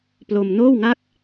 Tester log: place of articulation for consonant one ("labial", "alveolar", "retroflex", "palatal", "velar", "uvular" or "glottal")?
labial